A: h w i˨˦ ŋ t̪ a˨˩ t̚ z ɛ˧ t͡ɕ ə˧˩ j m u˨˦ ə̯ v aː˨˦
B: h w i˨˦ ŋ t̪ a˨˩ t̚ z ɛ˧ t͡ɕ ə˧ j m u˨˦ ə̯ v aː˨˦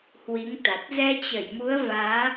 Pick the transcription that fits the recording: A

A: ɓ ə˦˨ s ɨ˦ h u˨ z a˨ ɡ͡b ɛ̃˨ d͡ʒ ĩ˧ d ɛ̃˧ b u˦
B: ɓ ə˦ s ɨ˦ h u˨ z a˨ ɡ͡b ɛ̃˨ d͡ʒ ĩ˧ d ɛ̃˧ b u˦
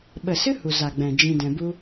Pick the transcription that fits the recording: A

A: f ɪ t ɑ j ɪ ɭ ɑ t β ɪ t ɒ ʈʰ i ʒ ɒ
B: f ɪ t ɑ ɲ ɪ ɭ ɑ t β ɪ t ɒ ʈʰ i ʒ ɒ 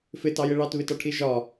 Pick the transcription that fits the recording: A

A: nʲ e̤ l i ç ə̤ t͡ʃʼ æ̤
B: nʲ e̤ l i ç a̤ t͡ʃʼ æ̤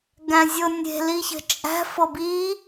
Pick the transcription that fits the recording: A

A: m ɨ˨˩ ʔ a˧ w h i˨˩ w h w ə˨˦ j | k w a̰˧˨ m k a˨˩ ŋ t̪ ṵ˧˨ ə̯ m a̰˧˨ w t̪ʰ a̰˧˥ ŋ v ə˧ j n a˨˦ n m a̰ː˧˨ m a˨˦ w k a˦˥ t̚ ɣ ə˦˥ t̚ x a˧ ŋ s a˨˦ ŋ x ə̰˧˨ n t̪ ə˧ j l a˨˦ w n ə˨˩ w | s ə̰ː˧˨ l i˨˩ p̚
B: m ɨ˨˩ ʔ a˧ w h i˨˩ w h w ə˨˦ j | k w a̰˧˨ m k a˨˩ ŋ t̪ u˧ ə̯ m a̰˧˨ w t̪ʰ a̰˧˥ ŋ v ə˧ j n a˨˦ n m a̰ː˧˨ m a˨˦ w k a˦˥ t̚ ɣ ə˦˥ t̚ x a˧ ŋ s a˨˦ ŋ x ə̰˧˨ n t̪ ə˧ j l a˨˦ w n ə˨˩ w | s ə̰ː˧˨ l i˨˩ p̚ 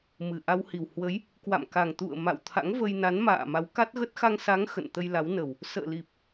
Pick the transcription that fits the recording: A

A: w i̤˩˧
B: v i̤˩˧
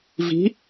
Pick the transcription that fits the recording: B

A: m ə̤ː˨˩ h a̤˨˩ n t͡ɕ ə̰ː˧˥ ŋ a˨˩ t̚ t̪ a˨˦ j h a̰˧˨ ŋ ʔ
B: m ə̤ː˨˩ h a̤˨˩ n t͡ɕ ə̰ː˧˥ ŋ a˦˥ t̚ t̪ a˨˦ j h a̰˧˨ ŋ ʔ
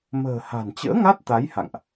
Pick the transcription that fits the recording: B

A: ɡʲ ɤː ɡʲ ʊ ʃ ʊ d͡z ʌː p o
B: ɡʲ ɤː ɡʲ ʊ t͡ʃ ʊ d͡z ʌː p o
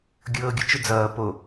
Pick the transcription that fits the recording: B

